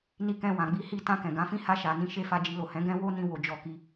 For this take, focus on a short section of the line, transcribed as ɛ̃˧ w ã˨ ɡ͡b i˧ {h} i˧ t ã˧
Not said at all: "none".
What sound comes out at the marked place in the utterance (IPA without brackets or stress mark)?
h